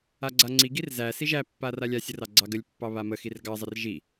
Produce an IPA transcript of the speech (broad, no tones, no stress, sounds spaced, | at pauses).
a ɡ͡ǀ a ŋ͡ǀ i ɡ i r z æ s i ʒ æ pː a r a lʲ a sʲ ə r ɑ ɡ͡ǀ ɑ ɡ ə lʲ pː ɑ β a m ə x i r ɡ ɑ zˤ ə r ʒ i